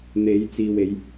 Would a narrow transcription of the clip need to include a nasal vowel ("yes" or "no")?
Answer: no